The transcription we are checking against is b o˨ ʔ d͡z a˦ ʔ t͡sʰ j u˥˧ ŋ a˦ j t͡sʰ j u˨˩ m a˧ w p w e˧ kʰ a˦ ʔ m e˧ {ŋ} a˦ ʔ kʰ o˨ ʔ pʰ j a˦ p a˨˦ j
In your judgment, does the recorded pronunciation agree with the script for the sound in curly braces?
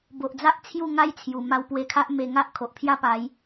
yes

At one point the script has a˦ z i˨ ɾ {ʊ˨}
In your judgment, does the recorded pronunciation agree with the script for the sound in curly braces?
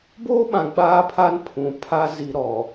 no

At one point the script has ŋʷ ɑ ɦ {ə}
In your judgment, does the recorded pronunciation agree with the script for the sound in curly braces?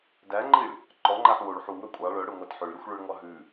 no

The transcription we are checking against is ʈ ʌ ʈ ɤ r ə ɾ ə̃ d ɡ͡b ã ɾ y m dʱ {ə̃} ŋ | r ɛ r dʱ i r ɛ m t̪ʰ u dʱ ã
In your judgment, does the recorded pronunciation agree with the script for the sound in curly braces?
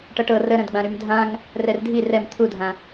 no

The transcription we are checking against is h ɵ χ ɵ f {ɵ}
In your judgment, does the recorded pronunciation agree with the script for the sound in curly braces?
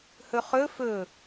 yes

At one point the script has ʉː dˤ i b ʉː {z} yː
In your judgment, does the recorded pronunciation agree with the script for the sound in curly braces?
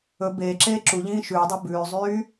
no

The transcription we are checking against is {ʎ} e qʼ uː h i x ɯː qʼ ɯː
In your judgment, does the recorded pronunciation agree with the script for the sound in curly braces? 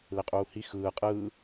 no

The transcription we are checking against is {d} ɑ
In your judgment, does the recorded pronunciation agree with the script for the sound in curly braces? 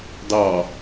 yes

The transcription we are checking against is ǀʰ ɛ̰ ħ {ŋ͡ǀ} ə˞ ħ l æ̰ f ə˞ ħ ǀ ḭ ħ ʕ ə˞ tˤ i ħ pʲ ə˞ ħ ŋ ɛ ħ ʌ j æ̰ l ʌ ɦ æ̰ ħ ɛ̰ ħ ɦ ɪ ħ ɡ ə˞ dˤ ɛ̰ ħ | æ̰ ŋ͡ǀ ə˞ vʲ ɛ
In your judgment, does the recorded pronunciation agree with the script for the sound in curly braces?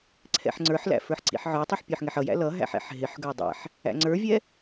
yes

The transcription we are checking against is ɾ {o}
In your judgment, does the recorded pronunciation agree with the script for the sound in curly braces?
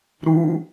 no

